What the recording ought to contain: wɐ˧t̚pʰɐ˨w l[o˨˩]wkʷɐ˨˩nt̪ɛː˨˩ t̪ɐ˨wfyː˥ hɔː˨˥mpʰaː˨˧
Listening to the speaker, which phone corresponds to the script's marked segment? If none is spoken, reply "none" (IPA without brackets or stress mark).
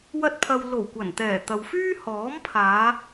o˨˩